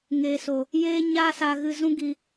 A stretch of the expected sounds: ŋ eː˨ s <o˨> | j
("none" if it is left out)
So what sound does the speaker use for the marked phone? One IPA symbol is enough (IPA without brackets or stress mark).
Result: o˨